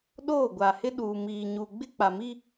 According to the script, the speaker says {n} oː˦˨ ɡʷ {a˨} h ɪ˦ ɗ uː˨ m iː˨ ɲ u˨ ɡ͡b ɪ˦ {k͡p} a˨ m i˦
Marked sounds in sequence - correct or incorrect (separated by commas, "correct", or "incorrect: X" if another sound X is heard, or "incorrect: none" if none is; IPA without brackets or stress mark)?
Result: incorrect: ɗ, correct, correct